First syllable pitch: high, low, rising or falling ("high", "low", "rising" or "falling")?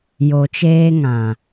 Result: low